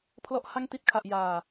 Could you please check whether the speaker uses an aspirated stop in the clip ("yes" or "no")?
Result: yes